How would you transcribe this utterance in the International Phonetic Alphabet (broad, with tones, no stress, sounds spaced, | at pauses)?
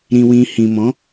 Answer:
ɾ ĩ˨ w ĩ˨ h ĩ˨ m ɔ̃˨˦